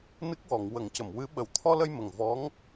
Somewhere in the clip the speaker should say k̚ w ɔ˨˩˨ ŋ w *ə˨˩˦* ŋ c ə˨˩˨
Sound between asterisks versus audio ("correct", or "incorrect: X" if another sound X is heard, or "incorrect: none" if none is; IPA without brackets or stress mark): correct